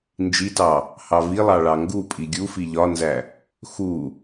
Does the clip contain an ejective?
yes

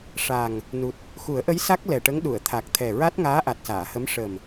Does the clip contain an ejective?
no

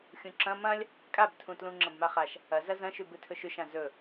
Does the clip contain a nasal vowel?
yes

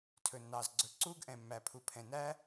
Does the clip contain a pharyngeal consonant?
no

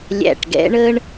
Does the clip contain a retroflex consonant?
yes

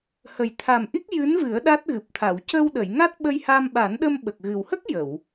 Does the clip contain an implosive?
yes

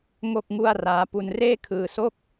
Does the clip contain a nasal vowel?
no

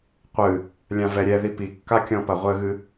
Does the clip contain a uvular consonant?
yes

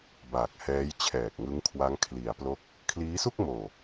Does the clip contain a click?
no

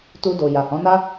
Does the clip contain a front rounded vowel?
no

